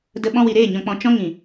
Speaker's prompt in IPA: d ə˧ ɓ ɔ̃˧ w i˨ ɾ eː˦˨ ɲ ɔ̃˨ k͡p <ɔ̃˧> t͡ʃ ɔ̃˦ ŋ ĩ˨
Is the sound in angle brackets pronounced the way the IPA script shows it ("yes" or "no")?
no